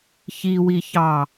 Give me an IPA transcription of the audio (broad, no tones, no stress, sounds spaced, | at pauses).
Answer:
ç i w i ç ɑ